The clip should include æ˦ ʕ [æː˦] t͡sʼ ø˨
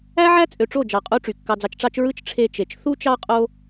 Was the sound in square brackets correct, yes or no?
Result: no